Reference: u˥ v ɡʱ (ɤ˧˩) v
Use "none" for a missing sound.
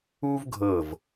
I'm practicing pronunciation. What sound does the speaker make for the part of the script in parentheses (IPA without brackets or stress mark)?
ɤ˧˩